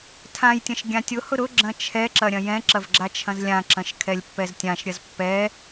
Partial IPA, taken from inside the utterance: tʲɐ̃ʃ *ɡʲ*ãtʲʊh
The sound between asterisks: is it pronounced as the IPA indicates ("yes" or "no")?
yes